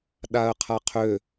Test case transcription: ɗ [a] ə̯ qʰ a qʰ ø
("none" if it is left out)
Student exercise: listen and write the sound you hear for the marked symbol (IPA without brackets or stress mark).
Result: a